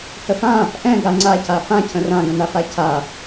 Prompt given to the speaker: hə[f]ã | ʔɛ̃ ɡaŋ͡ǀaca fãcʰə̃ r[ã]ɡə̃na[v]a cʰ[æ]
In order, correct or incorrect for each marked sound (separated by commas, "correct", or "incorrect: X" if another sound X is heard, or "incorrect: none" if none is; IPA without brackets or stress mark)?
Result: correct, correct, incorrect: f, incorrect: a